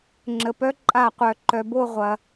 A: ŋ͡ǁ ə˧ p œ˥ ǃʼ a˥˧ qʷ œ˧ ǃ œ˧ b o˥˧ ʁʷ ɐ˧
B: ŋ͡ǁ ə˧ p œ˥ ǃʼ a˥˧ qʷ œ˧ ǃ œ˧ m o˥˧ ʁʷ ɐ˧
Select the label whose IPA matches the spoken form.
A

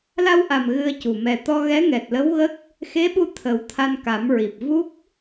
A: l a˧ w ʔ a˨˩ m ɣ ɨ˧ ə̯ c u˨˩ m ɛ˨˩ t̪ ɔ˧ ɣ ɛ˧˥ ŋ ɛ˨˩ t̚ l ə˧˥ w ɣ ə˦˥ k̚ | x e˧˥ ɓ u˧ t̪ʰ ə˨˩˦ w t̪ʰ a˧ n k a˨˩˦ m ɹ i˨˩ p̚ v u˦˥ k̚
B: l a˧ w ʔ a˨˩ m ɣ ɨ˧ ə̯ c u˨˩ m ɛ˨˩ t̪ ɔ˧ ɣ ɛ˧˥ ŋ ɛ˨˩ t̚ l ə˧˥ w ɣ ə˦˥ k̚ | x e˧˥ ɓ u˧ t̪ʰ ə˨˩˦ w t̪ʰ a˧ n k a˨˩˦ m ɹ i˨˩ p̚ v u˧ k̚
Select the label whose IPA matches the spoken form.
A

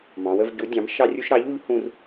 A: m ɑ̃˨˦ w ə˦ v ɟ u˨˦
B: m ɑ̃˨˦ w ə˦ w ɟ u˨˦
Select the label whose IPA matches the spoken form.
A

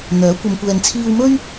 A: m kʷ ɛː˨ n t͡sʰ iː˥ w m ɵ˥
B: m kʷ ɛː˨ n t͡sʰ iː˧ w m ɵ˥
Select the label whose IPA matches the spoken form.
B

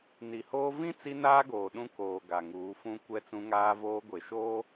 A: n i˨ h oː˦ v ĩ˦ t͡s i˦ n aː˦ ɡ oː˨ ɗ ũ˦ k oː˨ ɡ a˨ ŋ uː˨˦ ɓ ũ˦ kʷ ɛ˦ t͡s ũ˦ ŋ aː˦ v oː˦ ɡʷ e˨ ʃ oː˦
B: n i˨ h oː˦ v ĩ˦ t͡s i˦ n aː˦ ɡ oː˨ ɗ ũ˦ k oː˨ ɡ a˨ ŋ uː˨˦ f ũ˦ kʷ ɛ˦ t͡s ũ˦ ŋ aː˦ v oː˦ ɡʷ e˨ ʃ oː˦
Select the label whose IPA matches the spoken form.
B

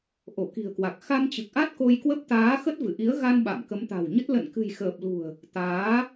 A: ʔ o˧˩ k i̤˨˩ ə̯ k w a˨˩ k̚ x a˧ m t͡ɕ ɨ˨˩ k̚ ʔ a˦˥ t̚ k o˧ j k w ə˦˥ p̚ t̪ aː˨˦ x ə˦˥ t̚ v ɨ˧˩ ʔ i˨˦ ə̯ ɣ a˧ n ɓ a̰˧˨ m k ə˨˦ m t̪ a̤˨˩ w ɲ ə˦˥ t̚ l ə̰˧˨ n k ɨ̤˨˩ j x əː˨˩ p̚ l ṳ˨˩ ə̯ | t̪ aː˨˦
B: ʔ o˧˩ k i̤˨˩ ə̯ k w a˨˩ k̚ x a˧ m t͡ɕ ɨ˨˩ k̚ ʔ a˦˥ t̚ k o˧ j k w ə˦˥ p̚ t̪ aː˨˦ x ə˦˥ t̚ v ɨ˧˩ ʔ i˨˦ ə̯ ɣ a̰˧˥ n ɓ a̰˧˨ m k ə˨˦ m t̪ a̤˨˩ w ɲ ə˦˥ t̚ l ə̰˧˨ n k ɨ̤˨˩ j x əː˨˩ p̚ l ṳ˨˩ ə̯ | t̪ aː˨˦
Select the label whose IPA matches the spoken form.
A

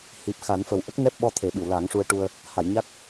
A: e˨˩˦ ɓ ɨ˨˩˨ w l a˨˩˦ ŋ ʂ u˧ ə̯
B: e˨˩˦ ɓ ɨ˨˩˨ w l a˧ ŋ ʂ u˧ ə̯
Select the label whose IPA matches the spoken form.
A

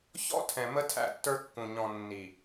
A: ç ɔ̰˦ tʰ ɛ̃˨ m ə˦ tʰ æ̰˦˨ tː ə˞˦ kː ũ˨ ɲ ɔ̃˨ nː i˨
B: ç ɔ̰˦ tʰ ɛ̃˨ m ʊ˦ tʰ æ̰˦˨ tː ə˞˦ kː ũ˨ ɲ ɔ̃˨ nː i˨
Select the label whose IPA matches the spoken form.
A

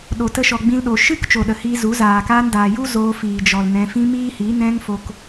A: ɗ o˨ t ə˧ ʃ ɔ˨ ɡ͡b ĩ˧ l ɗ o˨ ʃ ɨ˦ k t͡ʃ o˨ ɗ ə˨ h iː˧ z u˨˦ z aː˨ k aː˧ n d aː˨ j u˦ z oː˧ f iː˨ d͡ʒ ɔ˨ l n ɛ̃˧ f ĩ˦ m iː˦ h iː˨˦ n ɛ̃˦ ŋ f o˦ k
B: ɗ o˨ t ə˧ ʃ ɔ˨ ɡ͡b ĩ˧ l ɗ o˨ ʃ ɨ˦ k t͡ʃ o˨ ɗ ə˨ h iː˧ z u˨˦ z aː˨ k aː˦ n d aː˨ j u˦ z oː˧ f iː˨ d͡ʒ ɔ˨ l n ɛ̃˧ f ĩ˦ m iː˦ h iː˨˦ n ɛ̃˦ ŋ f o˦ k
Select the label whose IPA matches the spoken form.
A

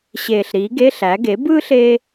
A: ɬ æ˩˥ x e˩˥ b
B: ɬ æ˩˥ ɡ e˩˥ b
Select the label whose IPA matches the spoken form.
B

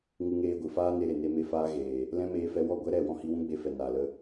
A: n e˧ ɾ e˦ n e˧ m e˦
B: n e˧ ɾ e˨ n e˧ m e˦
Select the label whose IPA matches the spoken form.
B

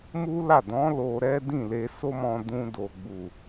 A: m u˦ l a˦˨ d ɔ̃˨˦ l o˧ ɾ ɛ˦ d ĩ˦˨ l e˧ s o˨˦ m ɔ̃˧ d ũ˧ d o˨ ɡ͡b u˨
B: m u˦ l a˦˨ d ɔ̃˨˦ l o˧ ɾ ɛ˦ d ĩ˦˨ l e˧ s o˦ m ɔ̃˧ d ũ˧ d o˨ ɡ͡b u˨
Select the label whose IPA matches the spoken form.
B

